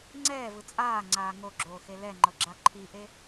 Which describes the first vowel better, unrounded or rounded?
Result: unrounded